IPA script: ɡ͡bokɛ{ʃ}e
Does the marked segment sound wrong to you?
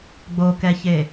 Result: yes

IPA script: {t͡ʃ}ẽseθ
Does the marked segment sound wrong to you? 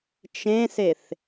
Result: no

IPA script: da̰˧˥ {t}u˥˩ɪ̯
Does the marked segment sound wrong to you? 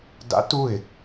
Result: no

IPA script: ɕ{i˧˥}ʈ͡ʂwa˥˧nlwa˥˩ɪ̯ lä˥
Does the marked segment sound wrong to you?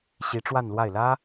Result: no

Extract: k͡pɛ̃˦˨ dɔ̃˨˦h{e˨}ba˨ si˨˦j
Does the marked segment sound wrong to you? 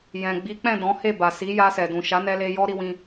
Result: yes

